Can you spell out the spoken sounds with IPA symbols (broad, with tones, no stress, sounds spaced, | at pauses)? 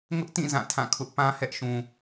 ŋ ʊ˦ ʔ t ĩ˦˨ z ã˦˨ tʰ ã˦˨ kʰ ʊ˦ ʔ p ã˦ h ɛ˦ ʔ ʃ ũ˨